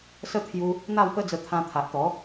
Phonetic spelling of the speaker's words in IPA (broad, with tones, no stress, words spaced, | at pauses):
sə˦t̪ʰju˧ | n̪a˥˧wpə˦d͡zə˧ t̪ʰã˧t̪ʰa˨ʔ t̪ɔ˨˦